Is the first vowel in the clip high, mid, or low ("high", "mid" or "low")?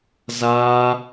low